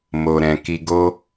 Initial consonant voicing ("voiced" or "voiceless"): voiced